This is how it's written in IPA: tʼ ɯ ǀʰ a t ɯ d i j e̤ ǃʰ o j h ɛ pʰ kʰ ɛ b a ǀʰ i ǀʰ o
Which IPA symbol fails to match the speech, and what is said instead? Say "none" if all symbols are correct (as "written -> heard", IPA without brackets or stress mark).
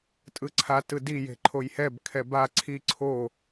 pʰ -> b